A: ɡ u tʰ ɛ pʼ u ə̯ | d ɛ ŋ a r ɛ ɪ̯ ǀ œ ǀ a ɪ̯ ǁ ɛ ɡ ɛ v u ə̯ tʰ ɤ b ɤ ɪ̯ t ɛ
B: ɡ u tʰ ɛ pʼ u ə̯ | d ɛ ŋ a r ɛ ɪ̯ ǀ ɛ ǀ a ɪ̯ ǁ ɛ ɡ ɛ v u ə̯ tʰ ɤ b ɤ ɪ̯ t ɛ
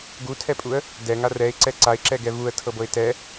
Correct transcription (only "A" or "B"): B